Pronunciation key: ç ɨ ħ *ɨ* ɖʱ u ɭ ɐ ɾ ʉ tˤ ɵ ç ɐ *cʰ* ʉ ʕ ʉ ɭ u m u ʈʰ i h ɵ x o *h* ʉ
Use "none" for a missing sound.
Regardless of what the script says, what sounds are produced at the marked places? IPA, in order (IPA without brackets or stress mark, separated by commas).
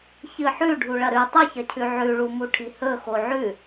ʉ, cʰ, ʕ